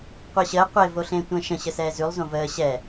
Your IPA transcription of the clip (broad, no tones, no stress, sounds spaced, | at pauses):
qʷ əː ɕ əː qʷ e v o ɬ ẽː tʷ ə̃ː ʃ ə̃ ɕ ə s ɛː z ʉ lˠ z õ v əː ɕ ɛ